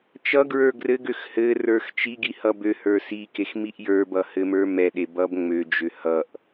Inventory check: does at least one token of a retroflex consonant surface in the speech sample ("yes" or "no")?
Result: no